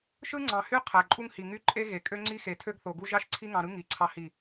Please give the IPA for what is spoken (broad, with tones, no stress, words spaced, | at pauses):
ʃɯ˦ŋ͡ǀɑ̃˨hy˦ qʰæ˨ǃʼu˦ŋhi˨ ŋy˦ǃʼe˦ɣe˨ kʼø˦ŋ͡ǀi˦xe˨tʰø˦ɡ θo˨ɡu˦ ʒɑ˦ʃǀʰi˦ŋɑ̃˨ɾɯ˦ ŋi˨˦ǀʰɑ˦hi˦˨